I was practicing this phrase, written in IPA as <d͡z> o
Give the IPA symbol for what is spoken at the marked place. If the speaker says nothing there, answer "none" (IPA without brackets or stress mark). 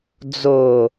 d͡z